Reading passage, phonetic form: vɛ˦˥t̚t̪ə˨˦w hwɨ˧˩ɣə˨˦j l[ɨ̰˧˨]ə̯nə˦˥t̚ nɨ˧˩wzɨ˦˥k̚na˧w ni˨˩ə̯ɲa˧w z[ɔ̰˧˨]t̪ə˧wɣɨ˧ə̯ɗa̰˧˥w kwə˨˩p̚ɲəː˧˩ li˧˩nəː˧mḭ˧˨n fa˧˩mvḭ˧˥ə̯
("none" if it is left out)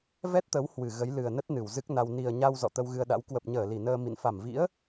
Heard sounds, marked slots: ɨ˨˩, ɔ̰˧˨

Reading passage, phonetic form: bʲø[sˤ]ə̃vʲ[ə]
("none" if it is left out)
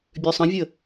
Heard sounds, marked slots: sˤ, ə

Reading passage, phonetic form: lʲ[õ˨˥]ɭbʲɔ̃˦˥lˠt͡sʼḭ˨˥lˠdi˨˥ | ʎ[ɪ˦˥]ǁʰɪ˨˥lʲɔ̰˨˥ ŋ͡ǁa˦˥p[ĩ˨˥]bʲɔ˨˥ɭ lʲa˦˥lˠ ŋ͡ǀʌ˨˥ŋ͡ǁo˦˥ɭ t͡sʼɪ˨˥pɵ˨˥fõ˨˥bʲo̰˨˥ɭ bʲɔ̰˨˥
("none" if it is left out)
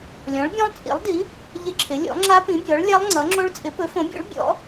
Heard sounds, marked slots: ɔ̃˨˥, ɪ˦˥, ĩ˨˥

